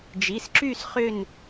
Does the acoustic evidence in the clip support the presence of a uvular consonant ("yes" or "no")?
yes